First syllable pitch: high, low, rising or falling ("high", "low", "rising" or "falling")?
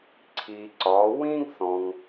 low